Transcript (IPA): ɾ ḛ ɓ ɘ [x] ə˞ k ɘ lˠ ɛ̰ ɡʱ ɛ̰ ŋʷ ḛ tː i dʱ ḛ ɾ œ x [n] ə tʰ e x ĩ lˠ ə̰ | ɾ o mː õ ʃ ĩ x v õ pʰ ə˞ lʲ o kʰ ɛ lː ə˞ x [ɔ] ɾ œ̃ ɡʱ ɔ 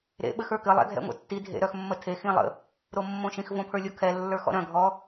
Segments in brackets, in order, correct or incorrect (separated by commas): correct, incorrect, incorrect